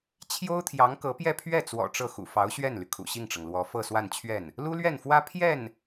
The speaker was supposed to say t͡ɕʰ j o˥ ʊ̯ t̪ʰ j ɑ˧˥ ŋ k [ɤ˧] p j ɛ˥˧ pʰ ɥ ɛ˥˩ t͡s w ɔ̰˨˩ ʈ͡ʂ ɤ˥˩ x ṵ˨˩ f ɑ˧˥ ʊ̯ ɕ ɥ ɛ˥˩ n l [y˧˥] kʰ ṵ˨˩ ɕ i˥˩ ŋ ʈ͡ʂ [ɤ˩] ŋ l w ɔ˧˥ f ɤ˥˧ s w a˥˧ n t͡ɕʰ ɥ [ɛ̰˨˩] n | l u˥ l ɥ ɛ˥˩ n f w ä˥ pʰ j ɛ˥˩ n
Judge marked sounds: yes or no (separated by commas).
no, no, yes, no